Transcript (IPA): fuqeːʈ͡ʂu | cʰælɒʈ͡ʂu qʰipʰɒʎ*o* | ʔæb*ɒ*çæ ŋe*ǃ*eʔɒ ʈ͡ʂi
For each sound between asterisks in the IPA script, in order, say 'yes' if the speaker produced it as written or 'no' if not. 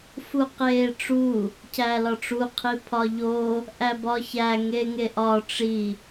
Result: yes, yes, no

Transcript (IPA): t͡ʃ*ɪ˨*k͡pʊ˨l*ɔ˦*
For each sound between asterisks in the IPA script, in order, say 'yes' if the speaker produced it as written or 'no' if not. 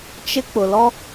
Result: no, yes

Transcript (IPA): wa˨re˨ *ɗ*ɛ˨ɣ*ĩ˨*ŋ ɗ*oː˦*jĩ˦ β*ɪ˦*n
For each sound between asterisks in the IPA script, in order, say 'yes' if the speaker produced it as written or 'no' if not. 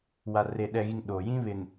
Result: yes, no, no, no

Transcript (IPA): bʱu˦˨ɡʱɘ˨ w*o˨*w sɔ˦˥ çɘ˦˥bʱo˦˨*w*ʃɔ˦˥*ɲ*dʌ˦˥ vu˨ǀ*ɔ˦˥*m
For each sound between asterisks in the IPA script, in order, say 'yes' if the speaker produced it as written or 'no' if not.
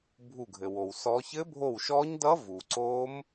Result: yes, yes, yes, no

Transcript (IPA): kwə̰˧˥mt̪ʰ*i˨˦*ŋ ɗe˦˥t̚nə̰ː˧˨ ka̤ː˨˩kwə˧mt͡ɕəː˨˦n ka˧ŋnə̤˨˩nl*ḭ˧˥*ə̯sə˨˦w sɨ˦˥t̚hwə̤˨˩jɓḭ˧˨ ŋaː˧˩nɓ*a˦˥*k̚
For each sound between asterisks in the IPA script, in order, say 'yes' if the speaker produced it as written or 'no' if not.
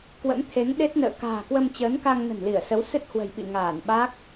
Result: no, no, yes

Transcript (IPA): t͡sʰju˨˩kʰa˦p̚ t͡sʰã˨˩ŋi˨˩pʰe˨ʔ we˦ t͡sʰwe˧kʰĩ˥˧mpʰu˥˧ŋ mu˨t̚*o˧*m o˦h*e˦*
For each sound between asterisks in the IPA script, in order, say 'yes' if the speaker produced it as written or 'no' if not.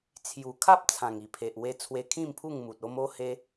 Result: yes, yes

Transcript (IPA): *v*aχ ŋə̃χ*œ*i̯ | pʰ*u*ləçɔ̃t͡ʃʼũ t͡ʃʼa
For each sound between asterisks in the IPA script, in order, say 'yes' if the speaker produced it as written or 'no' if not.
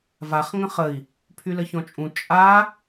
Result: yes, no, no

